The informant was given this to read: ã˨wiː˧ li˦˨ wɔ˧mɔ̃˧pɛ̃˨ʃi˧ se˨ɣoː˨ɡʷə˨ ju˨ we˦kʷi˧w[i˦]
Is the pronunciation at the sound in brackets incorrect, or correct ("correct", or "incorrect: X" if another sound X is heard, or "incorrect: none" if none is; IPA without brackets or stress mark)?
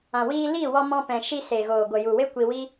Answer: correct